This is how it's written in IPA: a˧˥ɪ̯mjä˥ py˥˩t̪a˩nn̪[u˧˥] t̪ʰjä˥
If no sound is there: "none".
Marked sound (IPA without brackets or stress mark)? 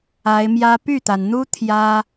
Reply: u˥